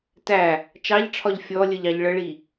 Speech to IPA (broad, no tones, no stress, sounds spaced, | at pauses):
t æ | t͡ʃ ɑ ʎ ʈ͡ʂʰ ɒ ʎ fʲ ɔ lʲ ə ʎ ɑ ʎ ɭ ə ɭ i